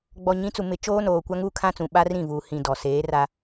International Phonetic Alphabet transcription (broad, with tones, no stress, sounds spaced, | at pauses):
ɡ͡b ɔ˨ ɲ ĩ˨˦ t͡s u˨ m ɪ˨ t͡ʃ oː˦ n oː˨ kʷ a˦ ŋ uː˦ kʰ ã˦ t͡s ũ˨ ɓ a˦ r ĩ˦˨ v uː˨ h ĩ˨ d ɔ˨ s eː˨˦ r a˦